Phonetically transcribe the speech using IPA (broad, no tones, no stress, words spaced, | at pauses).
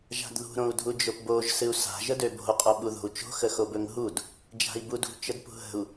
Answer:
ʒa̤dðṳ ɾõu̯dʱud͡ʒopboʒ sɨu̯sa̤ ʒədøbo̤u̯ qʼoɓuðo̤u̯t͡ʃo̤ xəxobɵŋɦud | d͡ʒa̤i̯budṳ t͡ʃədpṳɦə̤u̯